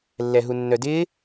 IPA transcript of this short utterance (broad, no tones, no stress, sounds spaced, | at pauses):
lː ɛ ɦ u nː œ d ɪː